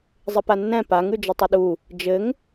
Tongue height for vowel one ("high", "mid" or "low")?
mid